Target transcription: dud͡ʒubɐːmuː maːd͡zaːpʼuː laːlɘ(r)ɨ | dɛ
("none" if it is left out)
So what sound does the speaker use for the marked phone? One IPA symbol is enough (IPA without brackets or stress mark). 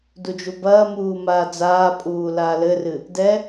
r